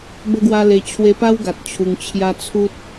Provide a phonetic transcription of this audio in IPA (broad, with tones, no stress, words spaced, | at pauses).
bə˦ɡwa˦le˧ t͡ɕʰwe˧pa˦wɡa˨t̚ t͡ɕʰu˧ŋ t͡ɕʰja˦ t͡sʰu˦t̚